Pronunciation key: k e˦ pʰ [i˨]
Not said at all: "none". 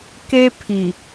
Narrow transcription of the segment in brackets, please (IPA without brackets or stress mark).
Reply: i˨